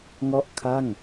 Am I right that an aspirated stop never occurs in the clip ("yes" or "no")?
no